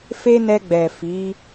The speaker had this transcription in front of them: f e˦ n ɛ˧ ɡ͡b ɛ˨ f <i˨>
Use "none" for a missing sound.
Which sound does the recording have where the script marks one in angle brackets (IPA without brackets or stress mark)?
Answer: i˨˦